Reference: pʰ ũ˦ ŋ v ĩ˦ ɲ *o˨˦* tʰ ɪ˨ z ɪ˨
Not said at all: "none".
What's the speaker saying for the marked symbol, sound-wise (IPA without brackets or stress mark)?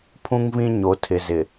o˨˦